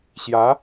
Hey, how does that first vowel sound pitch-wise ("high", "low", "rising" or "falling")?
rising